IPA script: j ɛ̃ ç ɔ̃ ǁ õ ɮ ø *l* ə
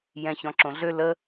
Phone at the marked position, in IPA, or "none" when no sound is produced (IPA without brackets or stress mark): l